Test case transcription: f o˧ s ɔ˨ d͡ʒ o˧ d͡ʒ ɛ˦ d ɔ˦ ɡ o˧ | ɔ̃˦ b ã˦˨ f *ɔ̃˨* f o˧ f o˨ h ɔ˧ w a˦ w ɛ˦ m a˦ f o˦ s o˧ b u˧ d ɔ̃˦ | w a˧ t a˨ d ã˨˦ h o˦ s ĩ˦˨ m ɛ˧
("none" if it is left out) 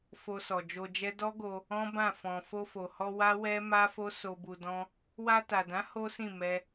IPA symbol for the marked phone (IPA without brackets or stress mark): ɔ̃˨